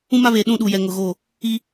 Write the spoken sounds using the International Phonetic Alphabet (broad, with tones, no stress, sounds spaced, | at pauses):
ũ˦ m a˦ β eː˨ ɗ ũ˦˨ ɗ u˨ j ɛ˨ ŋ ʊ˨ ɣ oː˦˨ | i˦